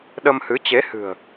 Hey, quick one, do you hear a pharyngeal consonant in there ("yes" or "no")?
no